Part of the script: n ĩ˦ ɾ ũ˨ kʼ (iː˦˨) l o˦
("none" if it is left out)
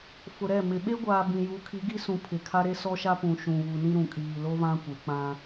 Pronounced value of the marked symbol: iː˨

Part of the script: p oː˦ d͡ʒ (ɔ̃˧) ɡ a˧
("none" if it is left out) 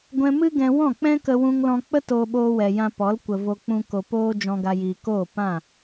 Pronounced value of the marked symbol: ɔ̃˧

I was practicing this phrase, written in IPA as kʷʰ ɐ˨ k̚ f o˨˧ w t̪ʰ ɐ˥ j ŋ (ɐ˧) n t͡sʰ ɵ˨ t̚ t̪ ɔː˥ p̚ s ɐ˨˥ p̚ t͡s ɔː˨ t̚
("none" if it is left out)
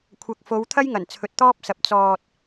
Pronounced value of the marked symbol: ɐ˨˩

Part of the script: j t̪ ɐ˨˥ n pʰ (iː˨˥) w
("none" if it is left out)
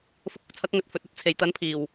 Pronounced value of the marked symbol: iː˨˩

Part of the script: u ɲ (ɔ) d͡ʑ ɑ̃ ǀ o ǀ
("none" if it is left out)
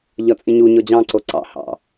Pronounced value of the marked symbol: ɔ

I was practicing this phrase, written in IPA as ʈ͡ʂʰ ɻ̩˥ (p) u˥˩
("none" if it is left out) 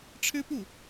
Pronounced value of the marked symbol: p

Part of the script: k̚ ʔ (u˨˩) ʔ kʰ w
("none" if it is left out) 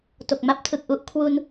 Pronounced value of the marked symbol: u˦˥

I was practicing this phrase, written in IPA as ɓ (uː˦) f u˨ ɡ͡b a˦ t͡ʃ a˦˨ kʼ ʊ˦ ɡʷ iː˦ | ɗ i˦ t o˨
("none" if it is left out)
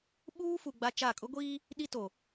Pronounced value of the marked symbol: uː˦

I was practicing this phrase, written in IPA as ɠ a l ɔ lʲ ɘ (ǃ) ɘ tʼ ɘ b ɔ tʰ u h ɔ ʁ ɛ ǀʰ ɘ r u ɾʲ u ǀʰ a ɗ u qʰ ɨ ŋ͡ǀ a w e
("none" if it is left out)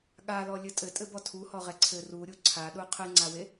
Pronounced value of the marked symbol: tʼ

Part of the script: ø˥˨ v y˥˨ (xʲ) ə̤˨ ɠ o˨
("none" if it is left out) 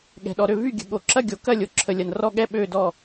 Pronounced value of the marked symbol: ɡʲ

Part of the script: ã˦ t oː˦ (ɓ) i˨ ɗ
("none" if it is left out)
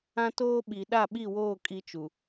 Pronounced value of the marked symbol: ɓ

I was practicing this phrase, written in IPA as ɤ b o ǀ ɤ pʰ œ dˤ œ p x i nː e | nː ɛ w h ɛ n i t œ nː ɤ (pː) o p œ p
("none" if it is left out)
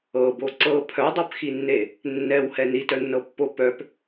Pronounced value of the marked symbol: pː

